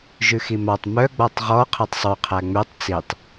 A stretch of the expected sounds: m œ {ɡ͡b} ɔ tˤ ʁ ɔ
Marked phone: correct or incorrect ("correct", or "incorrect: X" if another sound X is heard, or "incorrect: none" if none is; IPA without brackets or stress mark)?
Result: correct